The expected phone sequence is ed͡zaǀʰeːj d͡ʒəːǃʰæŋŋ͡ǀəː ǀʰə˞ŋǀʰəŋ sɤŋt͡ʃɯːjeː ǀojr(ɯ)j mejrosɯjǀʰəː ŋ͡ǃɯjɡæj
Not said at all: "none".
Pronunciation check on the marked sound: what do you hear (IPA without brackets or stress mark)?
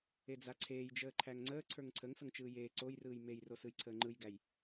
ɯː